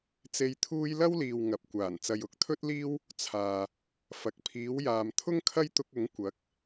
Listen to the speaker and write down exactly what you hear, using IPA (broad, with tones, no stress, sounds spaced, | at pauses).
t͡s e˧ j t̪ʰ uː˥ j l ɐ˥ w l iː˨ w ŋ ɐ˨ p̚ kʷ aː˨˩ n t͡s ɐ˨ j ʊ˨˥ k̚ t̪ʰ ɵ˥ t̚ l iː˥ w | t͡sʰ aː˨ | f ɐ˨ k̚ pʰ iː˨˥ w j aː˨ m t̪ʰ ʊ˥ ŋ kʰ ɐ˥ j t̪ ʊ˧ k̚ ʊ˨˥ ŋ kʷ ɐ˨˥ k̚